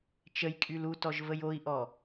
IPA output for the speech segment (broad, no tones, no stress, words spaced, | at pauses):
t͡ʃəjkʼyl utɔʒvəj oi̯ʔɔ